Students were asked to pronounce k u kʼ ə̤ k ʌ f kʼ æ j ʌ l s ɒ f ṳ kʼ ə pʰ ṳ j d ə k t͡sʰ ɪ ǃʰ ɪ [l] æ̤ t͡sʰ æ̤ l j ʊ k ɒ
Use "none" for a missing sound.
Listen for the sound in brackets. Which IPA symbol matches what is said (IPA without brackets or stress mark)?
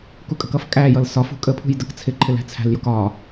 l